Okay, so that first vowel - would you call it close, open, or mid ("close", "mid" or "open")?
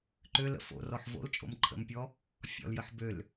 mid